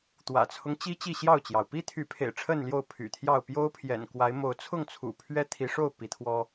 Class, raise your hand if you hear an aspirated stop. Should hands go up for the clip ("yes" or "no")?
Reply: yes